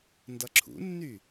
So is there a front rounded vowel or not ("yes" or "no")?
yes